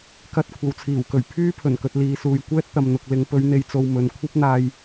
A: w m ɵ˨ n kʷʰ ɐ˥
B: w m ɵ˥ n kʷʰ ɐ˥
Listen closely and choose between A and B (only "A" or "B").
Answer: A